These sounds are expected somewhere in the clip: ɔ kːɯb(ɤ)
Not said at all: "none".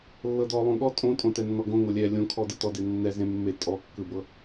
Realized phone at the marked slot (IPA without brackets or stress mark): ɤ